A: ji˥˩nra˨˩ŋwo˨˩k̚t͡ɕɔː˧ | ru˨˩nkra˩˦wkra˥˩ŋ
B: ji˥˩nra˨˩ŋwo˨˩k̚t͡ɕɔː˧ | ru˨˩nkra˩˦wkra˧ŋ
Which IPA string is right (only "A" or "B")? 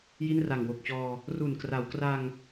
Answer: B